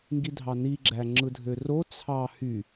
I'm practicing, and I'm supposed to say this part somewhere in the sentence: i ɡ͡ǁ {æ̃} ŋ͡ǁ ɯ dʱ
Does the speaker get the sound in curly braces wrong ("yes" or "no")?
yes